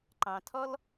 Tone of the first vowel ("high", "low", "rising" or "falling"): low